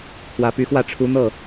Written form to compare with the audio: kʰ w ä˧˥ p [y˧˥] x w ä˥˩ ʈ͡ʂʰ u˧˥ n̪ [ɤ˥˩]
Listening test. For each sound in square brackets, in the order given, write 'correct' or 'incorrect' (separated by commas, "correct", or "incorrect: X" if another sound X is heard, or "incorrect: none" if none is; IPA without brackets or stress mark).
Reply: correct, correct